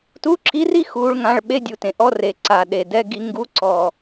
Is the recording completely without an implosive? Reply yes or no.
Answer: no